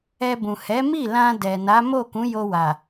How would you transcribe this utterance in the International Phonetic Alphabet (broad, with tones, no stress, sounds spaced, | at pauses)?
ɛ˧ b ũ˨ h ɛ˨˦ m i˦˨ l ã˧ d ɛ˨ n a˨˦ m o˦˨ k ũ˨˦ j o˧ w a˨